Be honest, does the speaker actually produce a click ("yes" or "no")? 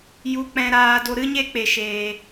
no